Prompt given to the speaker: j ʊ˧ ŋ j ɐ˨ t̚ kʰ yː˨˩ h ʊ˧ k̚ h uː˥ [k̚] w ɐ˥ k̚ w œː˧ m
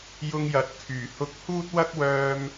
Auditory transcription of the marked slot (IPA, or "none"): t̚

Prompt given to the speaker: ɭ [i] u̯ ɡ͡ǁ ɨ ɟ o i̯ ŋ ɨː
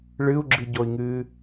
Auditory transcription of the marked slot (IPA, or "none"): ɨ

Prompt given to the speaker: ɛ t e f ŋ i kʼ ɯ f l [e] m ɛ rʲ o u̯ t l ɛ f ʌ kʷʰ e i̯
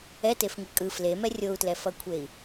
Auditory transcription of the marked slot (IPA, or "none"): e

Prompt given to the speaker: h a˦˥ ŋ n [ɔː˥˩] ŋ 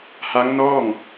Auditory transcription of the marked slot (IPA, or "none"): ɔː˥˩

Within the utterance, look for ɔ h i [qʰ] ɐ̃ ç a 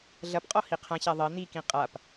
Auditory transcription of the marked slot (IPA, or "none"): qʰ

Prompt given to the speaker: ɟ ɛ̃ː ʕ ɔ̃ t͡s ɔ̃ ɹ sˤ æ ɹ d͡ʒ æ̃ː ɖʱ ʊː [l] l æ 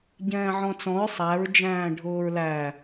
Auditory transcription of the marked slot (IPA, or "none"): ɹ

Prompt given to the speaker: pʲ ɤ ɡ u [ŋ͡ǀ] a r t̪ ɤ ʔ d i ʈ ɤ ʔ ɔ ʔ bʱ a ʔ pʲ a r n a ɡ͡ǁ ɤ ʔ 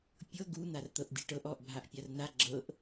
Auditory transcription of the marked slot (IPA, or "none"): n̪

